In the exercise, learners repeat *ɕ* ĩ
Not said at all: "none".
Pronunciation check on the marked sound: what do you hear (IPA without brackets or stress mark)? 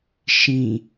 ʃ